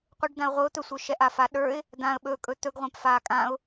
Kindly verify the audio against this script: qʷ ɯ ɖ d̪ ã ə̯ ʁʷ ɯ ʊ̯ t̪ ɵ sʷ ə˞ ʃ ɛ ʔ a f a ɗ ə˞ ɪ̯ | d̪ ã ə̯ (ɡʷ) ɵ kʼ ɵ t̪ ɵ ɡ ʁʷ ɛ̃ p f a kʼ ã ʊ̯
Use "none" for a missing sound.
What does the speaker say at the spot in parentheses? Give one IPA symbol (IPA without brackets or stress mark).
ɓ